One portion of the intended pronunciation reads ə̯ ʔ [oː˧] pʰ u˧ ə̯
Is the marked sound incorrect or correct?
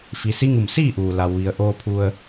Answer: correct